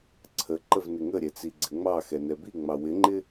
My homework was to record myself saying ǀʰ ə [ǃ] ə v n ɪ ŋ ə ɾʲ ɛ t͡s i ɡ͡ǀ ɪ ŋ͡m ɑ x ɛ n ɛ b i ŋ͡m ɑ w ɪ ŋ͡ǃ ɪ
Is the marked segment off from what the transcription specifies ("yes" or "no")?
no